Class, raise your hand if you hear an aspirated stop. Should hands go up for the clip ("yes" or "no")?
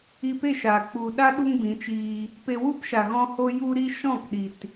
no